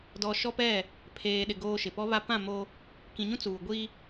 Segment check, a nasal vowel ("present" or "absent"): present